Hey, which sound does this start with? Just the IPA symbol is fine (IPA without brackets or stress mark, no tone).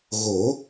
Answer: ɣ